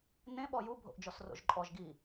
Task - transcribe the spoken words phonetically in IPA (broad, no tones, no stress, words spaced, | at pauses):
nẽ ɓɔju bʱo̰ʔd͡ʒɔsro̰ʒǃʼɔʒ ɡi